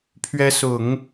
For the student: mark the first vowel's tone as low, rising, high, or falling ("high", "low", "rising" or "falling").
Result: rising